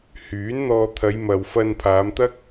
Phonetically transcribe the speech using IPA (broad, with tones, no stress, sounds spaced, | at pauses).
h yː˨˥ n n̪ ɔː˧ t̪ʰ ɐ˨˧ j m ɐ˨ w f ɐ˧ n pʰ aː˨˧ m t̪ ɐ˥ k̚